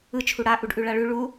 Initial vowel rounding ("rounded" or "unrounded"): unrounded